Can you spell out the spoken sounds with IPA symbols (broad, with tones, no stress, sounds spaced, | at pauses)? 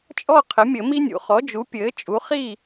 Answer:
t͡ʃʼ ɔ˥˨ qʰ ɘ˩˥ mʲ ɘ˨˩˦ m i˥ nʲ ṵ˩˥ χ ɔ˩˥ d͡ʒ u˩˥ pʲ ɘː˩˥ t͡ʃʼ u˩˥ χ i˥˨